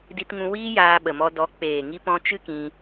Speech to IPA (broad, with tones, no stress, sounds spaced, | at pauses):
d i˧ t ŋ ũ˧ w iː˦ j aː˧ ɓ ə˨ m ɔ˧ d ɔ˨˦ k͡p eː˨ ŋ i˧ p ɔ̃˧ t͡ʃ ɨ˦ k ĩ˧